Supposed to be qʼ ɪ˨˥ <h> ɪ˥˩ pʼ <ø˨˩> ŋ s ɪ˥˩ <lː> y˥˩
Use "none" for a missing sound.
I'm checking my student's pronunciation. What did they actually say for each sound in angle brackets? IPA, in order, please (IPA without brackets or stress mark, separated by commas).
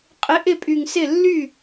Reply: ʔ, y˨˩, lː